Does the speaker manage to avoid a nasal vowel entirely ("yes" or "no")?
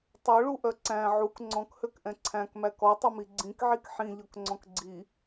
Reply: no